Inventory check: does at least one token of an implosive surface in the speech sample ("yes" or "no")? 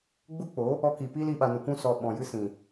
yes